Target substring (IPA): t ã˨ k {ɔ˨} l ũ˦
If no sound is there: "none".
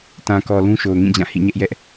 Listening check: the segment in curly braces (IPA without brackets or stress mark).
ɔ˨